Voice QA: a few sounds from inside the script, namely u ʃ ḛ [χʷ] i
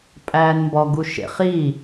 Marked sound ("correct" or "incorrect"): incorrect